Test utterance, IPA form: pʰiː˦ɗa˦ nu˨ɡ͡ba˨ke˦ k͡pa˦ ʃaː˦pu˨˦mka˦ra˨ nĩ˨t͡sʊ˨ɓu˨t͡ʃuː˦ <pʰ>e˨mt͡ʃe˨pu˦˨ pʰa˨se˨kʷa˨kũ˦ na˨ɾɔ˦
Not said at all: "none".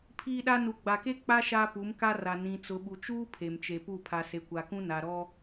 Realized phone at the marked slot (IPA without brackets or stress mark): pʰ